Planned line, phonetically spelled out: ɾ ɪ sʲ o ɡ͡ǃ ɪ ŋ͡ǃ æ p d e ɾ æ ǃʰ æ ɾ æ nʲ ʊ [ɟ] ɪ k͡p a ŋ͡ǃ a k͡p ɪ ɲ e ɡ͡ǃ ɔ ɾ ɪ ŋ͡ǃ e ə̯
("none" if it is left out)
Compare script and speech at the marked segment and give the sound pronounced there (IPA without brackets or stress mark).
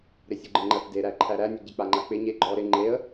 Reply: ɟ